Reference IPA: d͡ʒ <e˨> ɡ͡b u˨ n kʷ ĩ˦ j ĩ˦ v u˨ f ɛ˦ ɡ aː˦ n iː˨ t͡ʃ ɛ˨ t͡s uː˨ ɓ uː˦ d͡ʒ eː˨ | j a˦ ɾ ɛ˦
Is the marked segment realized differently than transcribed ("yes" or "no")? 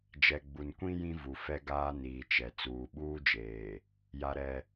yes